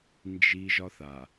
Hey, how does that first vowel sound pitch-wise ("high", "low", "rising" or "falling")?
high